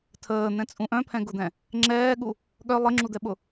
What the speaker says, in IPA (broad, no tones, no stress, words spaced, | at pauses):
tʰəːn̪ɛ̃t͡sʼũ ʔœ̃pʰɛ̃ɡʊd̪ɛ̃ | ŋ͡ǁɛːɠu | ɠœ lˠɘŋ͡ǁud̪ɛɓʊ